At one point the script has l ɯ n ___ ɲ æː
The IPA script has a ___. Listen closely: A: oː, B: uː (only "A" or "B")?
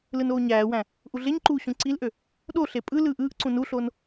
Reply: A